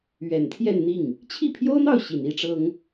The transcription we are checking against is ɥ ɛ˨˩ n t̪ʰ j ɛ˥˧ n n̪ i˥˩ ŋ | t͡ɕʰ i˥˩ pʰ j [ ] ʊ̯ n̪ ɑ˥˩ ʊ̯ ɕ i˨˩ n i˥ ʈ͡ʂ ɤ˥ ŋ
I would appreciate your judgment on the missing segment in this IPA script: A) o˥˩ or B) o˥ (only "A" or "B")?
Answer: B